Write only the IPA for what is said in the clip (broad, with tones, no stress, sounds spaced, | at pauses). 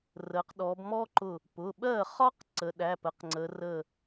r ə˩˧ q ɗ ɔ˩˧ b m ɔ˦˥ ǃ ʊ˧˩ | p ʊ˩˧˩ ɓ ɜ˥˩ χ ɒ˦˥ q ǀ ə˩˧ ɗ æ˩˧˩ p ə˧˩ q ŋ͡ǀ ə˩˧ r ə˧˩